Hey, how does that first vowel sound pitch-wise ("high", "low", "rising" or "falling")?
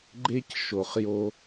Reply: high